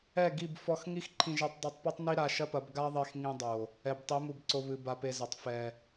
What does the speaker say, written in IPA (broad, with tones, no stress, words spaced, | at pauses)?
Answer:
ɛ˦˨ɡi˦˨b fɔ˧x ŋi˦xǃʰĩ˧ʒe˧tˤ dˤe˧tˤpi˦tˤ ni˦ɾa˧ʃɐ˦pɐ˨˦b ɡa˦ðˤe˧x ŋĩ˧dˤo˨ | ɛ˨btˤi˨˦mu˨bǀo˧ βɨ˨ ba˧pe˧zɘ˨tˤ fɛ˨